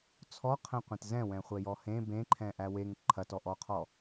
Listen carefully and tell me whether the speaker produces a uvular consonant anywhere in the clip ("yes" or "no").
yes